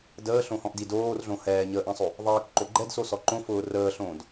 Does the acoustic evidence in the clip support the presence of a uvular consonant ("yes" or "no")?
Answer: no